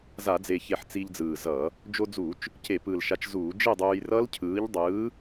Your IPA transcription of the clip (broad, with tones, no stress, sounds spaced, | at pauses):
z a˧˩˧ d͡z e˨˩ ç e˨˩ ħ t͡s i˧ ʎ d͡z ɯː˨˩ z ʌː˧˩˧ | d͡ʒ o˧ d͡z uː˧˩˧ t͡ʃ | c e˧˩˧ p ɯ˨˩ l ʃ a˨˥ t͡ʃ z uː˧˩˧ d͡ʒ e˥˧ dˤ uː˧ j r ʌ˦˥ l cʰ ɯː˨˥ ʎ dˤ ɯː˨˥